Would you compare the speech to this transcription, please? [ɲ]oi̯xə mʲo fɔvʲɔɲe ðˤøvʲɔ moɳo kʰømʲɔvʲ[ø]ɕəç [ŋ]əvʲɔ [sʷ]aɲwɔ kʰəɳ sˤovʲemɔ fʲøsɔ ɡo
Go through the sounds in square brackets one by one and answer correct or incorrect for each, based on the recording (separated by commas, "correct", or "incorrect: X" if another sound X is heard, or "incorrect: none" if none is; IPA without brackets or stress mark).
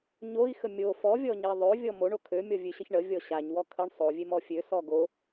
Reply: correct, correct, incorrect: ɳ, incorrect: ɕ